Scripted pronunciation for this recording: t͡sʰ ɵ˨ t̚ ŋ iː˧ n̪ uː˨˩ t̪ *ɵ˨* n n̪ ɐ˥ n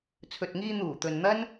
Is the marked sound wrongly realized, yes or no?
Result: no